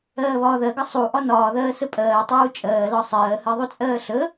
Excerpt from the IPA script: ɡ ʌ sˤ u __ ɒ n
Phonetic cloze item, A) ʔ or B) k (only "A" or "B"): A